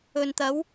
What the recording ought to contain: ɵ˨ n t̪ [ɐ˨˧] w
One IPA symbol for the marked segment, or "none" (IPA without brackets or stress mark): ɐ˨˧